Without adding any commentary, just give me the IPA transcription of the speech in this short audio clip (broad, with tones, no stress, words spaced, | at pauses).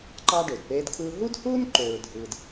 ǃɑ˥ɖø˩dpeː˥dkʰɯː˥ ɦu˥dhuː˥n ǃøː˧ɹdʱɯː˧d